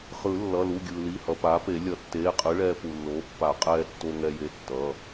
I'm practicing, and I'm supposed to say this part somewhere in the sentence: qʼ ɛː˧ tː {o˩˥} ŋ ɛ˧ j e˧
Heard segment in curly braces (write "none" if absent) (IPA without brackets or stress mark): o˧